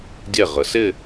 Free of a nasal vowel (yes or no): yes